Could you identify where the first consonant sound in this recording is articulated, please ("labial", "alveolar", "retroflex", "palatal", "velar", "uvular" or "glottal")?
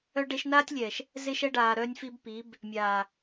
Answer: retroflex